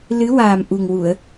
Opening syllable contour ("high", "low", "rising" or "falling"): rising